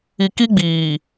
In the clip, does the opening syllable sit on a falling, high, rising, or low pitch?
low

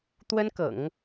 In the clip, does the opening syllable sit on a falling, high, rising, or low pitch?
high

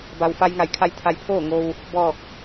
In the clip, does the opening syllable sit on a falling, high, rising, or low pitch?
low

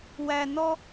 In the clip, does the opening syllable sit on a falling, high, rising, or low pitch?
low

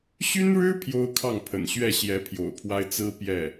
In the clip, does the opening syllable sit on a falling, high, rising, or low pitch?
high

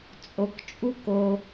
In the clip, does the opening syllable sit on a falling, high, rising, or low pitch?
low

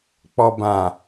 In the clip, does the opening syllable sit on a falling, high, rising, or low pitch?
low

